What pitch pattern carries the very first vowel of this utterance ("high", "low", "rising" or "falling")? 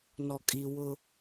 low